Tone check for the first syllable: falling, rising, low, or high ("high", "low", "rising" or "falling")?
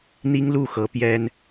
high